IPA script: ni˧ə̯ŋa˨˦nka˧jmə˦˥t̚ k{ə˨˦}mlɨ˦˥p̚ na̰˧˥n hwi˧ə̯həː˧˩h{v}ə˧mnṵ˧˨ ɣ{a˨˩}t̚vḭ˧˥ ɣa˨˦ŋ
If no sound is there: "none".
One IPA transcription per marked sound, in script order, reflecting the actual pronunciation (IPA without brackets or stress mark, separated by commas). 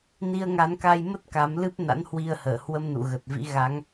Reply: a˨˦, w, ə˨˩